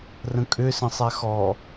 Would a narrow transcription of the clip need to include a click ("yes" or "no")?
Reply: no